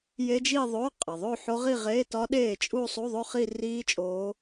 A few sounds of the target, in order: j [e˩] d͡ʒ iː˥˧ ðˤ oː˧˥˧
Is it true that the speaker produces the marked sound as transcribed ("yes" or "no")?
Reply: no